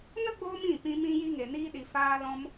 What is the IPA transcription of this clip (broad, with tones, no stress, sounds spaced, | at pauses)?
n ə˦ ɡ͡b oː˧ m ĩ˦˨ p ĩ˧ m ĩ˧ j i˧ ŋ e˨ n iː˧ ɗ i˨ f aː˧ l ɔ̃˧ m